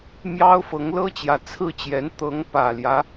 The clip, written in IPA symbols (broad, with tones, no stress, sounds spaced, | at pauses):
m j ɑ˥ ʊ̯ f ɤ˧˥ ŋ l ɤ˥ t͡ɕ j ä˨˩ t͡sʰ ɹ̩˥˩ t͡ɕ j ɛ˧˥ n t̪ ɤ˧˥ ŋ p ä˨˩ l j ä˦